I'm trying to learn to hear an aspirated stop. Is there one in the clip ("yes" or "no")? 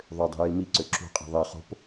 no